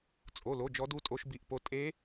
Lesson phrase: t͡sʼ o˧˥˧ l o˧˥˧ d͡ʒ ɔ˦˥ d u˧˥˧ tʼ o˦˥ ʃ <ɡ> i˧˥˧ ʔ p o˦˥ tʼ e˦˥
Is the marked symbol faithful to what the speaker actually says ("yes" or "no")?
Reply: no